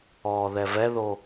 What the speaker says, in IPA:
ɔː ð ɛ v ɛ ð o

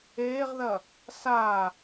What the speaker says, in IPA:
eː ʁ ð ɐ | s a

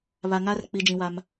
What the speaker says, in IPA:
β a˨ ŋ a˦ r k͡p i˨ d͡ʒ ĩ˨ w a˦ m

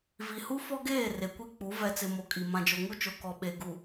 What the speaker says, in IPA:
v i˨ h u˦ f ɔ˦ ɡ eː˦˨ r e˨ kʷ i˦ k͡p u˨˦ v ɛ˨ t͡s ɪ˨ m o˨ kʼ i˨ m ã˨ d͡ʒ o˨ ŋ u˦ t͡ʃ o˨ k ɔ˨ ɓ e˨ ɡ u˨

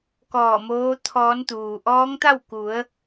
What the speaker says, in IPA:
k ɔː˧˩ m oː˧˥ t̪ʰ ɔː˧˥ n t̪ uː˩ ʔ ɔː˧˥ ŋ t̪ a˥˨ w k u˩˧ ə̯

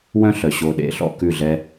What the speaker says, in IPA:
w œ̃˦ ɬ œ˨ ɕ o˧ ɗ ḛ˧ ɬ ɔ̰˧ k ʉ˦˨ ɮ ɛ˦

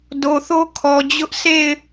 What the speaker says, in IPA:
d o˨ θ o˦ kʰ ɔ˨ d͡ʑ ʊ˦ ʔ s e˦˨ ɪ̯

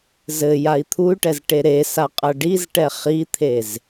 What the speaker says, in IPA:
z ɘ j a i̯ t̪ʰ u y̯ ʈ ɛ z ʈ e ɾ e s a qʼ ɐ ɖ i z ʈ ɛ χ i t̪ʰ e z

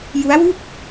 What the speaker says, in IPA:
j u˦˥ a̯ w u˥˩ k̚

